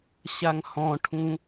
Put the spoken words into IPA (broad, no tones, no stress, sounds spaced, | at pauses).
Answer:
ɕ a ŋ h ɔ̃ ʈʰ ũ